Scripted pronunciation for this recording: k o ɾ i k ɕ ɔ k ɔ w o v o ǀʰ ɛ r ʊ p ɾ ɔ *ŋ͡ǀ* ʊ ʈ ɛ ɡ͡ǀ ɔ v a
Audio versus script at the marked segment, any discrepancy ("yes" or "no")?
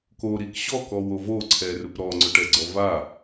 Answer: no